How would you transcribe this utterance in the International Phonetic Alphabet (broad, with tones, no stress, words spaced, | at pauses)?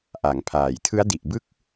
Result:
ʔa˩˦ŋpʰaː˨˩j tʰɯ˦˥a̯di˨˩ʔbɯ˥˩k̚